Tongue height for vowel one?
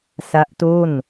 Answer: low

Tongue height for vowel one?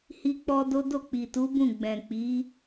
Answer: high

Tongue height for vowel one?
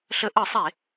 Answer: mid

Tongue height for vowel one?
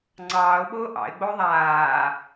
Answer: low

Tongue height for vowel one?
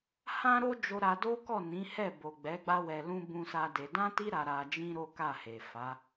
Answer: low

